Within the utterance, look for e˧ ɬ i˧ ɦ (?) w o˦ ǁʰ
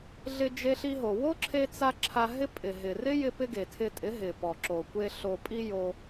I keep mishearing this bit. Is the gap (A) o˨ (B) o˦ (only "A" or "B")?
A